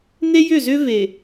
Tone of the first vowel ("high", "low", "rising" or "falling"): high